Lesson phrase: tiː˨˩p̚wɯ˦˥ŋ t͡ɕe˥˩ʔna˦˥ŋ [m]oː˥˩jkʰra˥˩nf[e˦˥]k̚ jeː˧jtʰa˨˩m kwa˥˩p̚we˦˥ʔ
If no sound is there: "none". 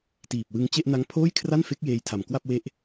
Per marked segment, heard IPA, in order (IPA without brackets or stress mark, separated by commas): pʰ, e˦˥